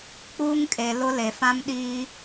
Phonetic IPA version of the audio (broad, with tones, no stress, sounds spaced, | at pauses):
k͡p uː˦ ŋ kʼ e˨ l ʊ˦ l e˨ f ã˦ m ɗ iː˦